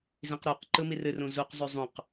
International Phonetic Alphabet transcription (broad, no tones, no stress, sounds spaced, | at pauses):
z ĩ q ɾ u q ǃ ɯ m i r ɨ r ũ z u q zˤ ø zˤ ũ q